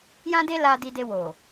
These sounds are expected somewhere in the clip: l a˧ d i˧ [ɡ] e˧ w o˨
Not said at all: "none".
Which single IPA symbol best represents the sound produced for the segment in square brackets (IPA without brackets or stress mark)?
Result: d